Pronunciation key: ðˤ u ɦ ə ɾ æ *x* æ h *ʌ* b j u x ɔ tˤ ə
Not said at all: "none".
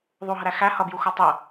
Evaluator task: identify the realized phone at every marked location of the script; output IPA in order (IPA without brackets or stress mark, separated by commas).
x, ʌ